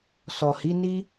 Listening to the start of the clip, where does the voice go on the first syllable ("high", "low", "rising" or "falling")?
low